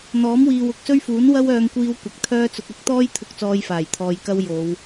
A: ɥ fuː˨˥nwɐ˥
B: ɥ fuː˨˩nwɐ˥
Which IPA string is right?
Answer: A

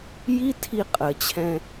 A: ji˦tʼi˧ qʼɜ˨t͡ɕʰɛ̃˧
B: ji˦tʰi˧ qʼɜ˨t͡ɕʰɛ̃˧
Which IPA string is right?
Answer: B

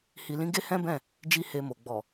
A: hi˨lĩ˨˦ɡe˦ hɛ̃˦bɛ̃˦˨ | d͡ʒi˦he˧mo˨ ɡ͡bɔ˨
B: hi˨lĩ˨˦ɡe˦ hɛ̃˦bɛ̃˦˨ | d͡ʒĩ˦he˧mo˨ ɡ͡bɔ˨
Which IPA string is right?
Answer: A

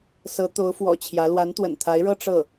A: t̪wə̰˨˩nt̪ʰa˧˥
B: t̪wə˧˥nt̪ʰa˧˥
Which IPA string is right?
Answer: A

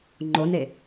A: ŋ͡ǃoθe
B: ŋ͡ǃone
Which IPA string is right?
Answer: B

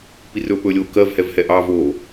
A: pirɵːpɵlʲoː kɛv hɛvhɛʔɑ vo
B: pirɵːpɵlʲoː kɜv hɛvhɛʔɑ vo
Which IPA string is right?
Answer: B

